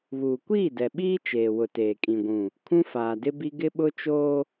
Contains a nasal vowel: yes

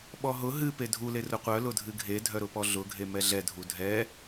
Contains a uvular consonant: yes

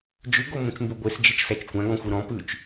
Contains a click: no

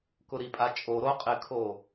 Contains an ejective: yes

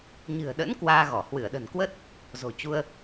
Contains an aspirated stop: no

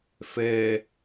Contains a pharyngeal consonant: no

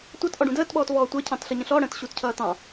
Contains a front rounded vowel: no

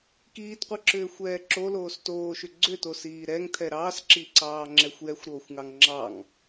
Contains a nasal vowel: no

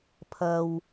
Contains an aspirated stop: yes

